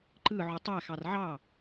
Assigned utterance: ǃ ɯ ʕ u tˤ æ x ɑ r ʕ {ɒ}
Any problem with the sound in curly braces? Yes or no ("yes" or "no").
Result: yes